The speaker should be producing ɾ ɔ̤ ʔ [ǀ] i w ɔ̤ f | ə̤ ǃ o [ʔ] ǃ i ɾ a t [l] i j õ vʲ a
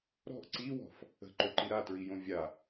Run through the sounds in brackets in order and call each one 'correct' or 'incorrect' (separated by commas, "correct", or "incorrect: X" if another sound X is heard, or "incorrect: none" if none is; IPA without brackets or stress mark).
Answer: correct, incorrect: none, incorrect: ɹ